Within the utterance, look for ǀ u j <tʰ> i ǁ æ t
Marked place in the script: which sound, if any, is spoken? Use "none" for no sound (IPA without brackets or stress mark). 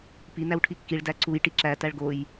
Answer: ʈ